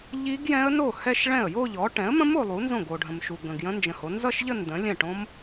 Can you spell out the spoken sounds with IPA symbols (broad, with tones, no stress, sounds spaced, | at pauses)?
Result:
ʎ i˦˥ ɡ j ɛ̃˦˥ ə̯ n o˥˩ h ɛ˥˧ ʃ ɭ ɛ̃˥˩ ə̯ j o˥˧ ʎ ɔ˩˥ ʈ ɛ̃˩˥ ə̯ m ə̃˦˥ m o˨ lˠ u˩˥ n z õ˥˩ ɡ o˨ ɖʱ ə̃˨ m ʃ u˨ ɡ ə̃˨ ɡ j ə̃˦˥ n d͡ʒ ə̃˨ h o˩˥ n z ʌ˥˧ ʃ ʎ ə˥˧ n d ə̃˩˥ lʲ ɛ̃˥˩ ʈ õ˦˥ m